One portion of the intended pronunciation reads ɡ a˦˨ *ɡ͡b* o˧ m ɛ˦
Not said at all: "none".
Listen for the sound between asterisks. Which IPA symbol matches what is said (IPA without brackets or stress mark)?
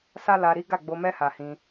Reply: ɡ͡b